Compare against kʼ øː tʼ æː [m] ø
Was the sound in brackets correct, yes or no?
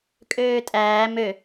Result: yes